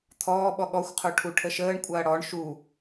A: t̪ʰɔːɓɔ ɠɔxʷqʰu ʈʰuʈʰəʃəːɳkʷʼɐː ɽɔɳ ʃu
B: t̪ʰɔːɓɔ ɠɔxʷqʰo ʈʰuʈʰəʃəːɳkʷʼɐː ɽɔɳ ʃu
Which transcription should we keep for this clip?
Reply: B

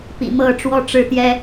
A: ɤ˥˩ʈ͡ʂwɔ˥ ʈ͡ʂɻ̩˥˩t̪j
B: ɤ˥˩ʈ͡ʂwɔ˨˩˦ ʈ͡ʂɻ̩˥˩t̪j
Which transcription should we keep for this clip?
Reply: A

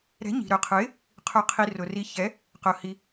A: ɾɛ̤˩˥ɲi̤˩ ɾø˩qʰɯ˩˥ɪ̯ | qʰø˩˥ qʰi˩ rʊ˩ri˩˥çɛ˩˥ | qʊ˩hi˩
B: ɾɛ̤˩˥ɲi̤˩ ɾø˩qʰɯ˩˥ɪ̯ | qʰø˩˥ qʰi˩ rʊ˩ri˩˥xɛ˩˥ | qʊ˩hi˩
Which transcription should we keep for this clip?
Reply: A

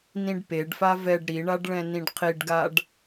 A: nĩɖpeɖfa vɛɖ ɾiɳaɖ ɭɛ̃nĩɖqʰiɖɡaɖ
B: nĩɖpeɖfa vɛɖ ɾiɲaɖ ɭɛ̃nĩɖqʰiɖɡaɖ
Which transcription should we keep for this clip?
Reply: A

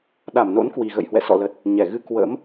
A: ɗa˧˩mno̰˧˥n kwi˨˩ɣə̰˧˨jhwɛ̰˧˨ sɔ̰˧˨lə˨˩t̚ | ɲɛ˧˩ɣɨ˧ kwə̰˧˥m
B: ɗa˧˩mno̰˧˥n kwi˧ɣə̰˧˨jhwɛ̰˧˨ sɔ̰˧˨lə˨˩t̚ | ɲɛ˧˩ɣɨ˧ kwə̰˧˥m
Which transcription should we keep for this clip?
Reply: A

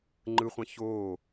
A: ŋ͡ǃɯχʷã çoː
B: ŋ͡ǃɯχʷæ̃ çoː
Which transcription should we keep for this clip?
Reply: A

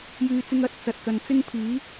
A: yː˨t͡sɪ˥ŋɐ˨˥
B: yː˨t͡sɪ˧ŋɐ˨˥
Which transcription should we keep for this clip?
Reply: B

